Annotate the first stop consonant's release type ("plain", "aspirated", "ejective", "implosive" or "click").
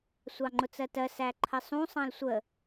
click